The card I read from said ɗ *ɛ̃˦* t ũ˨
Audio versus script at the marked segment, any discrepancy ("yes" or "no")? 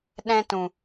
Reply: no